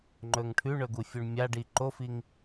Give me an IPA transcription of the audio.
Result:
ŋ͡ǃ ɵ ŋ ʈʰ ʉ ɳ ɵ ɡ u fʲ u ɳ mʲ a ɖ i ǃ o f i ŋ

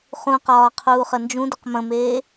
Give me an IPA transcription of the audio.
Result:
χ ũ q ɒː qʰ uː χ ə n d͡ʒ ũ d ɘ q m ə̃ m eː

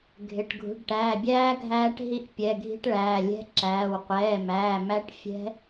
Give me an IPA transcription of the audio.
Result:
ɡʱ ɪ˩˧˩ ʈ ɡʱ ṳ˩˧˩ ɖ ʈ æː˩˧˩ bʲ æː˦˥ ɡʱ æː˦˥ ʈ ɦ i˦˥ ʔ pʲ ɛ˩˧˩ ɡʱ i̤˦˥ ʈ ɭ æː˩˧˩ lʲ ɛ̤˦˥ ǁ æː˩˧˩ w qʷ ɛː˩˧˩ m æː˩˧˩ m æ˦˥ ʈ fʲ ɛ̤˦˥

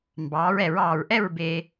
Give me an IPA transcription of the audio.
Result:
m b ɑː˩˧ ɹ ɛ˧˩˧ ɹ ɑː˨˩ ɹ ʔ ɛ˥˨ ɹ b e˧

